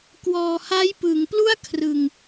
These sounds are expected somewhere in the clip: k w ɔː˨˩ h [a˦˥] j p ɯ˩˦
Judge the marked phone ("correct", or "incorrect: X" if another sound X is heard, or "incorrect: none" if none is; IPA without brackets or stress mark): correct